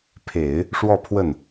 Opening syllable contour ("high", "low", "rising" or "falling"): low